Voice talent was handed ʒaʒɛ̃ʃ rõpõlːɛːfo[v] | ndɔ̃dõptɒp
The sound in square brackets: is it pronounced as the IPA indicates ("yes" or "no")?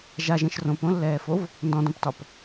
yes